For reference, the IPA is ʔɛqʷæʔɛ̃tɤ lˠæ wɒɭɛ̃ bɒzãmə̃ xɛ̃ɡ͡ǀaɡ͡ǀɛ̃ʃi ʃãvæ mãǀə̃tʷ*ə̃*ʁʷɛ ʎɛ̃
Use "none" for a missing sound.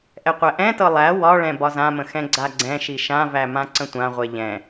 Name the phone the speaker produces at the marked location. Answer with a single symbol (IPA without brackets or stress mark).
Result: ã